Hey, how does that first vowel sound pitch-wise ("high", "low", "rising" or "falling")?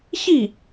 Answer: falling